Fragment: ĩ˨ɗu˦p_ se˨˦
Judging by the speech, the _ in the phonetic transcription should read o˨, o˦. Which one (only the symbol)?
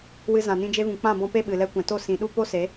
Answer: o˦